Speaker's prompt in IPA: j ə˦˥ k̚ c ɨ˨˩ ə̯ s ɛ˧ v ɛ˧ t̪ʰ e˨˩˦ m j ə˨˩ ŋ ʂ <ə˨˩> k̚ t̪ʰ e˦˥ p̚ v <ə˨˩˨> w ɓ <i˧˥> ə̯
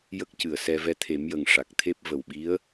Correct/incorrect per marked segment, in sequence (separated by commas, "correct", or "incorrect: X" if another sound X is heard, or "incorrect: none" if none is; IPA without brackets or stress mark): incorrect: a˨˩, incorrect: ə˨˩, correct